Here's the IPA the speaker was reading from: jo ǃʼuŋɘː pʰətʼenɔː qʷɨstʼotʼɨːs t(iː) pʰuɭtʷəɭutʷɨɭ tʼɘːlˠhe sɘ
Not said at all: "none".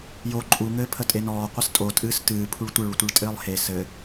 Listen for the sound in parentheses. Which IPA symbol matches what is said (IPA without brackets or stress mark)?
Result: ɨː